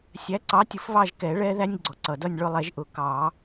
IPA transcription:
sʲ æ˨˥ ǀ ɑ˨˥ tʲ ʊ˨˩˦ f β ɑ˦˨ ʒ k ɛ˨˩˦ ɭ ɛ˥ ð æ˥ nʲ ɡ͡ǀ ɔ˩ ǀ ʌ˩ d ʌ˦˨ nʲ ɭ ʊ˦˨ lˠ ɛ˨˩˦ ʒ ʔ ʊ˨˩˦ k ɑ˨˩˦

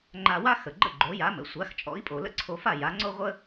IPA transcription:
ŋ͡ǃ a˧ w a˥ x ə˩ ɡ͡ǃ ə̰˥˩ ɡ͡ǃ o˩˥ j a˩˥ m ə̰˩ sʷ a˩˥ x t͡ʃʼ ɔ̰˩˥ i̯ pʼ o˩ l ə̰˥ ǀʰ o˧ f a˥˩ j a˩˥ ŋ͡ǀ o˥ ʁʷ ə˥

